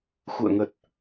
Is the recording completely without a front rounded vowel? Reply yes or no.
yes